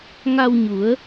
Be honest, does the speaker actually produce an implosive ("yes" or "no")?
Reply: no